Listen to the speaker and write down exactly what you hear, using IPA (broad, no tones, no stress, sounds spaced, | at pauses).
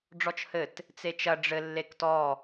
ɖ͡ʐ ɔ t͡ʃ h ɘ t | t͡s e t͡ʃ ɐ ɖ͡ʐ ɘ lː e k t ɔ